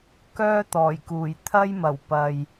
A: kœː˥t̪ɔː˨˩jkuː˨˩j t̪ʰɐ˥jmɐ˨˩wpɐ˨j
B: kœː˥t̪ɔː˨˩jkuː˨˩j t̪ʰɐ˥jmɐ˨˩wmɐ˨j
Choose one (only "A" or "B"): A